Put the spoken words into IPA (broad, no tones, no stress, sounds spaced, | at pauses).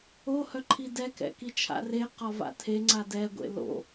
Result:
o h œ ǃʰ i d ɛ k ɛ̰ k i t͡ʃʰ a̰ r e q ɒ v a̰ tʰ e ŋ͡ǀ a d ɛ ɡʷ ḛ l o̰